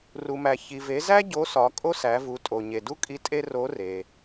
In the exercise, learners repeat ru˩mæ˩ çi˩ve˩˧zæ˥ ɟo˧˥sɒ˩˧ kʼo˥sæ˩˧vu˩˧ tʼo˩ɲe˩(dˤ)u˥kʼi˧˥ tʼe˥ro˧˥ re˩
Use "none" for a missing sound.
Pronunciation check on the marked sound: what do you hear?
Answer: d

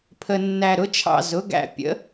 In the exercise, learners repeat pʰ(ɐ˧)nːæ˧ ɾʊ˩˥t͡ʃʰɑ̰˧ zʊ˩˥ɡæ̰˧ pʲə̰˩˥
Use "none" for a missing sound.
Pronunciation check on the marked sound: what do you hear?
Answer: ə˧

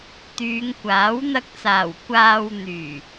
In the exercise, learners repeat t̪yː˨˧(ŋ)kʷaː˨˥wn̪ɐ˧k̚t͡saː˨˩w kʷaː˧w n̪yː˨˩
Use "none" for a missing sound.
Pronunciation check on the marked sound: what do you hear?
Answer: ŋ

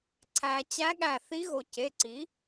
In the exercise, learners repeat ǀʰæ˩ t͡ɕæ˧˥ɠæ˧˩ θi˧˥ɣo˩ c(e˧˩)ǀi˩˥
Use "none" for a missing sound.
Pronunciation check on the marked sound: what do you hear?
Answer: e˩˧˩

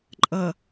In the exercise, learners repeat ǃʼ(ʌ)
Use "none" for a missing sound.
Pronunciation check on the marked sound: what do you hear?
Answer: ʌ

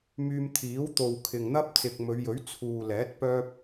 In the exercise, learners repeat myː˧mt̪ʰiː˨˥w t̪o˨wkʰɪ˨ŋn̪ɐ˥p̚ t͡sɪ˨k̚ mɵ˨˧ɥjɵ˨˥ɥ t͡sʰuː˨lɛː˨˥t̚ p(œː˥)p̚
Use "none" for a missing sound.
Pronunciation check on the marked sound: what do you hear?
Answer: œː˥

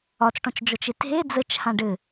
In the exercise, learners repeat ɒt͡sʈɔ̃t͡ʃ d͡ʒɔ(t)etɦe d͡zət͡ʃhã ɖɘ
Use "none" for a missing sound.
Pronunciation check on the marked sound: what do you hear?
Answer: t͡ʃ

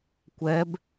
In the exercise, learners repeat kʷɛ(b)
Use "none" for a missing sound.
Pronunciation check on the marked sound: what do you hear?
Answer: b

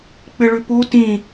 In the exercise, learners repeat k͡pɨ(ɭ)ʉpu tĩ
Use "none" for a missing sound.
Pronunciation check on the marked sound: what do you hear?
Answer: ɭ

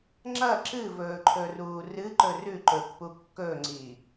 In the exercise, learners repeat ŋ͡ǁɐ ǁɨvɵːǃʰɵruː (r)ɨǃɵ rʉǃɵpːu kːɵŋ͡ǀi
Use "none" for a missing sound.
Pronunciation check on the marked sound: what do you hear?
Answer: r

